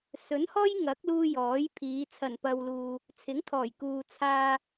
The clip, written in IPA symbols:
s ɵ˨˥ n h ɔː˥ j ŋ ɐ˨˥ k̚ l uː˧ j ɔː˨˥ j pʰ iː˨˧ t͡sʰ ɐ˨˩ n p ɐ˨ w l uː˨ | t͡sʰ ɪ˨˥ ŋ t̪ʰ ɔː˨˩ j k uː˨ t͡sʰ aː˧

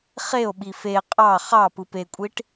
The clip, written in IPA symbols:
χ e o̯ ɓ i f e qʼ ɑ χ ɑ p ɯ p e kʷʼ i ʈ

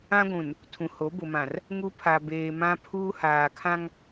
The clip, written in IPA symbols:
ã˦ ɡʷ ũ˨ n | tʰ ũ˨ h o˨˦ b ʊ˨ m ã˨ r | ŋ u˦ pʰ a˨ b eː˨ m ã˦ pʰ uː˦ h aː˨ kʰ ã˦ ŋ

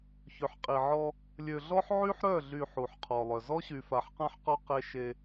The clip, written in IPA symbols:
ç ø˨ ħ qʼ i˨ ʕ ɔ˦ | lʲ ø˨ ɮ ɔ˦ ħ ʕ y˦ ħ ɾ œ˦˨ ɮ y˨ ħ u˨ ħ qʰ ɔ˨ lˠ œ˨ z ɔ˦ ɕ y˨ f a˨ ħ q ã˦ ħ q ɔ˦ q e˦ ʃ e˦

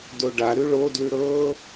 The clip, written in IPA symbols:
d o ɖ a ɾ ʉ ɭ o d l ʉ ɾ ɤ

